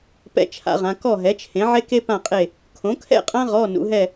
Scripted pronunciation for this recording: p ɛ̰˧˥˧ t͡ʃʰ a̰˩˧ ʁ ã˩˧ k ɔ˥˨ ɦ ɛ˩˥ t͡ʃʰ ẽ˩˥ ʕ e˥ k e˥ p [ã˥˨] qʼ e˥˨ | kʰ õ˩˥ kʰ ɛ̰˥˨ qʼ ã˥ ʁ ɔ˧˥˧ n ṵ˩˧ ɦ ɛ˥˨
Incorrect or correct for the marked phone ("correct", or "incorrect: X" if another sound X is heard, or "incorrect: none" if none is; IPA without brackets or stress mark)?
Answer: correct